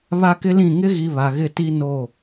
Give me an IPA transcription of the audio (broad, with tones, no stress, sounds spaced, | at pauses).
β a˦ k ɪ˦ l ĩ˦˨ ŋ ɪ˦ ɣ i˨ β a˨ ɣ ɪ˦˨ t i˦ n o˦˨